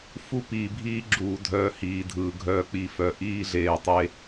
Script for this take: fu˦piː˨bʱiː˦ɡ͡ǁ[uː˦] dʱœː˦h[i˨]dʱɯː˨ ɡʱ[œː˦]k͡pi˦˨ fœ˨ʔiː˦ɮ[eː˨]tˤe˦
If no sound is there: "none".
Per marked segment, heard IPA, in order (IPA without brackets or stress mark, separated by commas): uː˨, iː˨, œː˦, eː˨